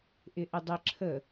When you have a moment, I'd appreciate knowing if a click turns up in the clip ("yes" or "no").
yes